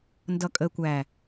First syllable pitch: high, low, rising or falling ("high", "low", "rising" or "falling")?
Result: low